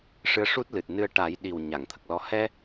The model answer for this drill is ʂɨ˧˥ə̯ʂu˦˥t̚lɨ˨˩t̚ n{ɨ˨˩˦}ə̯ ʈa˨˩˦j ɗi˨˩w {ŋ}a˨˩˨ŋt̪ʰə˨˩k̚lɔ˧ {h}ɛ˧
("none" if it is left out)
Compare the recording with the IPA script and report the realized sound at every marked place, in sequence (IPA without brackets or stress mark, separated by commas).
ɨ˧, ɲ, h